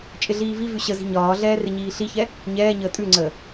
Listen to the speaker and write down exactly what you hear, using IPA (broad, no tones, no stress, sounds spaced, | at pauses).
t͡ʃʼ ɪ ɮ iː v i v ʉ ɕ ə z i̤ ɲ ɒː ɮ ɛː r ɪ ɲ iː ɬ i ç ɛ | ɲ ɛː ɲ əː tʼ ʉ ŋ͡ǀ əː